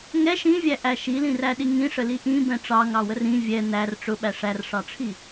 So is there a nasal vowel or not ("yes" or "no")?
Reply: yes